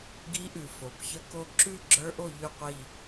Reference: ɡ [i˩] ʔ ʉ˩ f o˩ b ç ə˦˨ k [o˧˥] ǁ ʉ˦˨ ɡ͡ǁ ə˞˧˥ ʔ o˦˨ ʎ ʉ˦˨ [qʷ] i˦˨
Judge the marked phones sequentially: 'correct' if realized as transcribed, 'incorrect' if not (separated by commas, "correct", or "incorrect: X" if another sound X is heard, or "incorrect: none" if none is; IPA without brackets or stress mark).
incorrect: i˧˥, incorrect: o˦˨, correct